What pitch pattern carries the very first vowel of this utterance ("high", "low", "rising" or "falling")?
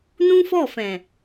high